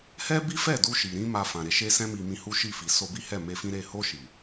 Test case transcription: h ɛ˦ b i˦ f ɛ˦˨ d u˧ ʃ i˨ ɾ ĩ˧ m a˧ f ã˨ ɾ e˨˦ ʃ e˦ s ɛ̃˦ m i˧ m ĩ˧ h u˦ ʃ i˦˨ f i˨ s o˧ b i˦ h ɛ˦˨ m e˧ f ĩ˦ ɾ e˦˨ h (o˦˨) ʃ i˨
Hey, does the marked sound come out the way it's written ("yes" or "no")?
no